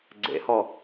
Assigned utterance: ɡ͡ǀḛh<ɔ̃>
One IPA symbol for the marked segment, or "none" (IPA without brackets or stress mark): ɔ